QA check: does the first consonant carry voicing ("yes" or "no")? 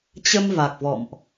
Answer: no